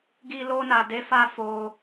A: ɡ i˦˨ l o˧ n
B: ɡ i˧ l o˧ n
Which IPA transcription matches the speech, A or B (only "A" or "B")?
B